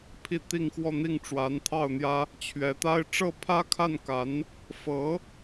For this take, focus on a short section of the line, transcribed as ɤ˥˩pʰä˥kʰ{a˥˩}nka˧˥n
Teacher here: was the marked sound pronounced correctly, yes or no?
yes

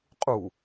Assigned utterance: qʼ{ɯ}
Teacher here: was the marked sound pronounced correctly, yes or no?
no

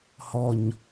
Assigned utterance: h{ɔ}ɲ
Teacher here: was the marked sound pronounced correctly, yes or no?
yes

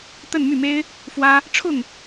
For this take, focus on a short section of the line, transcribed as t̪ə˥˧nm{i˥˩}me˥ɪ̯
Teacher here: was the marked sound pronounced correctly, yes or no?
no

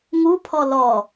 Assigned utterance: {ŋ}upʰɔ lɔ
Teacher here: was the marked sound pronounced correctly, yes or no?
yes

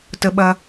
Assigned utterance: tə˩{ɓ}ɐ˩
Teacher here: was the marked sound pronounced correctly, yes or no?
yes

